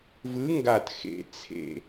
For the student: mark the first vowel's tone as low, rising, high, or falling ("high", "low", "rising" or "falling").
rising